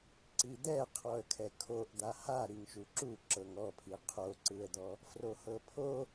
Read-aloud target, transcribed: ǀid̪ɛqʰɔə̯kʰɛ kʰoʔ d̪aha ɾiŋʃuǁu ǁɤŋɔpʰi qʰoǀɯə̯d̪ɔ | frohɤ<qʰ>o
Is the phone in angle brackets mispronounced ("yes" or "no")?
yes